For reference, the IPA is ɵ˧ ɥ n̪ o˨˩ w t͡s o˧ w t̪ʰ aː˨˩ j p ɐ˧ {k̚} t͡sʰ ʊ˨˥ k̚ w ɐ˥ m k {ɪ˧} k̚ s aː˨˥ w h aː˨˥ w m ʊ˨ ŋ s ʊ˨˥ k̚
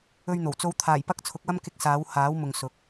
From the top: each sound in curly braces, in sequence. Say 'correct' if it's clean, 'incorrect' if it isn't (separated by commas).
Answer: correct, correct